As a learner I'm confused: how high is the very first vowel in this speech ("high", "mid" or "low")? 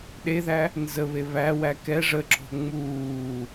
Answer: mid